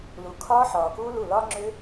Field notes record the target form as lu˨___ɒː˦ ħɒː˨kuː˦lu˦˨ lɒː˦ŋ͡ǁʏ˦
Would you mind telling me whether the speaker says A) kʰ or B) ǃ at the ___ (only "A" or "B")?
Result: A